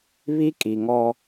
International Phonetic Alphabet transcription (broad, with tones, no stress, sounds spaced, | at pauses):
β i˦ kʼ i˨ ŋ ɔ˦